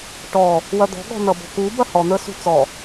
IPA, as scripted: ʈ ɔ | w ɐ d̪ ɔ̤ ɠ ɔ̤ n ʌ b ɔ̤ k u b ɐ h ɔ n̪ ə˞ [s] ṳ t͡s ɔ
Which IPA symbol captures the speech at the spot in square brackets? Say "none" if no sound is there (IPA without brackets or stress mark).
s